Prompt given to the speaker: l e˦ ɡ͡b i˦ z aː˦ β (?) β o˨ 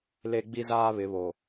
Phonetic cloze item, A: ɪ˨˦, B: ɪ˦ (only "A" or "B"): A